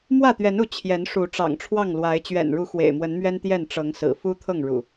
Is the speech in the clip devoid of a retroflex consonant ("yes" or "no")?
no